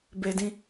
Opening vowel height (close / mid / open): mid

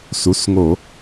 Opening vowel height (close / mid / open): close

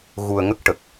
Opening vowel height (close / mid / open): close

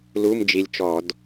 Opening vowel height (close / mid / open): close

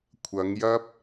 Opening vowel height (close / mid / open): open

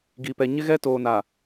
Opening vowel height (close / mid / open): close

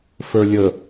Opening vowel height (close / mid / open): mid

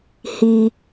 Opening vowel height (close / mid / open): close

